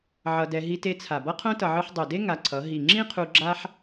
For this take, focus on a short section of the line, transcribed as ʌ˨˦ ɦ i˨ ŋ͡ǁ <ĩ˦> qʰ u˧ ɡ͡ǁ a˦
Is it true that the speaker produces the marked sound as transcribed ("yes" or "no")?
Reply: yes